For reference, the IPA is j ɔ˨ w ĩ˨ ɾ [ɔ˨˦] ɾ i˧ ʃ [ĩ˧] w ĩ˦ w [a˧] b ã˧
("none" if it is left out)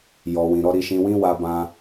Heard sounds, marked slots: ɔ˨˦, ĩ˧, a˧

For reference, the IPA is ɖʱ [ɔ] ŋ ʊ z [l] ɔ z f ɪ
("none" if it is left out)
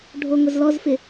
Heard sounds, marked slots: o, l

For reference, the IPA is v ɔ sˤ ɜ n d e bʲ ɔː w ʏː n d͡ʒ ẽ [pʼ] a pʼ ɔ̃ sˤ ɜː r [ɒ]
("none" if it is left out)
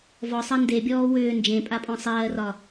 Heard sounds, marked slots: pʼ, ɒ

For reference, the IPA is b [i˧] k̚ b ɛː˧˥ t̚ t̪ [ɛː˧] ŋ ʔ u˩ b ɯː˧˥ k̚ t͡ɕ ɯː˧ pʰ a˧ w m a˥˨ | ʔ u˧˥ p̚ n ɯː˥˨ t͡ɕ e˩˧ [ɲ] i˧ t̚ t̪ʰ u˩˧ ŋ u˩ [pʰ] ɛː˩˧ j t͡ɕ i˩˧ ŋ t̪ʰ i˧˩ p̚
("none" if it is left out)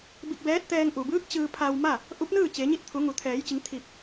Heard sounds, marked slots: i˧, ɛː˧, ɲ, t̪ʰ

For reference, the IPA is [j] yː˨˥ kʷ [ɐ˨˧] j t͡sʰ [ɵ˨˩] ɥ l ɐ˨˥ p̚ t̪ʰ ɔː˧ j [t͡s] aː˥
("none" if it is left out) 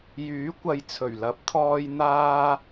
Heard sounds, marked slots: j, ɐ˨˧, ɵ˨˩, n̪

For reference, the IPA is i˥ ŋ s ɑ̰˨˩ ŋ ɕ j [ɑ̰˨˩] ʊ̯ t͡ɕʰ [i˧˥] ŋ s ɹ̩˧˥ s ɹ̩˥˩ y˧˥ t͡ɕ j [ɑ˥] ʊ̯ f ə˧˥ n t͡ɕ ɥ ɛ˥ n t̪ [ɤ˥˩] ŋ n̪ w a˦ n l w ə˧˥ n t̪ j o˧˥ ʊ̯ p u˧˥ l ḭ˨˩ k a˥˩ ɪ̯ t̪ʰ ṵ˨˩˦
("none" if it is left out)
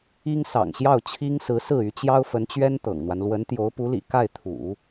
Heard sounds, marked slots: ɑ˥˩, i˥, ɑ˥, ɤ̰˨˩

